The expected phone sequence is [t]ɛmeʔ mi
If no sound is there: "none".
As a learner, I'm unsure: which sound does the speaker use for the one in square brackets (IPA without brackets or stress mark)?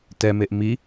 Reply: t